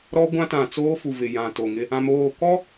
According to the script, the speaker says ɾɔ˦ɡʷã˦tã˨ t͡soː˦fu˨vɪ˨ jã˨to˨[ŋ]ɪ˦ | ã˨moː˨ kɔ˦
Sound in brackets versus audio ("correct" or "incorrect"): correct